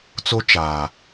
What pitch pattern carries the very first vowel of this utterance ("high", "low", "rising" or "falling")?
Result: high